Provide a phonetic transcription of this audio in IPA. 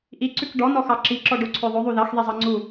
ʔ i ǀ ʉ k ɖ ɔ n ɔ x ɑ ǁ i ǁ ɔ ɖ o ǀʰ ø ðˤ o ðˤ u ð ɑ x ð e zˤ ɑ ŋ͡ǀ u

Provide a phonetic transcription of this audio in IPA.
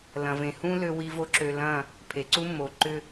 l ɐ̃˨ v ẽ˨ h ũ˦ l ø˦ w i˦ v o˦ ǁ ø˨ l ɐ̃˦˨ | pʰ e˨ ǀ u˦ mː o˨ ǃ ʏ˦

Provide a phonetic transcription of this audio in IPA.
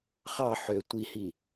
χ ɑ ħ ø tʷ i h i

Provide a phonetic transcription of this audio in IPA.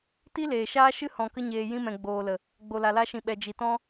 t i˦ l eː˨ ʃ aː˦ ʃ ɨ˦ h ɔ̃˨ k ə˧ ɲ eː˨ j ĩ˧ m ɛ̃˨ ɡ͡b oː˨ l ə˨ | ɡ͡b o˨ l a˨ l a˧ ʃ ĩ˨ ɓ ɛ˨ d͡ʒ i˨ t ɔ̃˦

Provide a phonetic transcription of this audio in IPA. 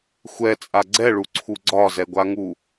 xʷ ɛ t͡sʼ a ɡ͡ǀ ɛ ɭ u ǀʰ u ɡ͡ǀ ɒ z ɛ ɡʷ a ŋ u

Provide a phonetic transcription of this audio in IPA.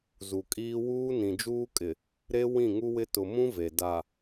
z u˨ kʼ iː˦ w uː˦ n ĩ˨ d͡ʒ uː˦ kʼ ɪ˨ | ɾ e˦ w ĩ˦˨ ŋ u˦ w ɪ˦ t ʊ˨ m ũ˦ v e˨ d a˨

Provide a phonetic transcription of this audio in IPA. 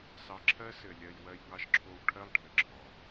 s ɑ˧ ǁʰ ɜ˥ s ɘ˧ lʲ ɜ˧ j w ɜ˧ j ŋ ɑ˧ ʃ ǁʰ o˧ w ʈʰ ɜ˥ lˠ ɖʱ ɘ˩ ǁʰ ɔ˩

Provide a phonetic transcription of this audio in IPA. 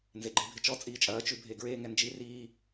n z e ɡ͡ǃ i bʱ ɪ t͡ʃ ɔ t͡sʼ iː t͡ʃʼ ɐː t͡ʃ ʉ bʱ e ɡ ɹ eː ŋ ɛ n d͡ʒ i r iː

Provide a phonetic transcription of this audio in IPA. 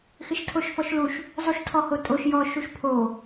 x ɪ ʃ tʰ o ʃ f ɔ ʃ l u ʃ | zˤ u ʃ tʰ ɔ h o tʼ o ʃ j ɔ ʃ u ʃ pʰ o

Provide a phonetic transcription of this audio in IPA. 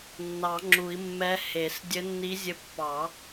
nː ɑ˨˩˦ ŋ͡ǁ u˨˩˦ i̯ mː ɛ˧˥ h e˨˩˦ s dʲ ɘ˧˥ nː i˧˥ zʲ ɘ˧˥ pː ɑ˨˩˦

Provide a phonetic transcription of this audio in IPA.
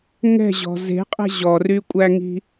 ŋ ɛ̤ ʑ ɔ̤ z e̤ qʼ ɛ̤ ʑ ɔ r y kʷʼ æ ŋ i̤

